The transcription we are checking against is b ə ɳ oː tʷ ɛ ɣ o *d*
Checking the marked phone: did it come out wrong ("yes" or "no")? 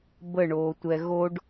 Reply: yes